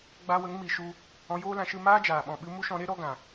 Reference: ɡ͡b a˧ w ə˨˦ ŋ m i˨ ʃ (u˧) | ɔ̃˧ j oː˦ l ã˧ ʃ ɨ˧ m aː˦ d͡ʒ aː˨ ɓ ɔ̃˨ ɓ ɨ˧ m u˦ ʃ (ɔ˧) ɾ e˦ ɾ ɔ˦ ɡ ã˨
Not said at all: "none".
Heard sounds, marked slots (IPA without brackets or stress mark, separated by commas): u˧, ɔ̃˧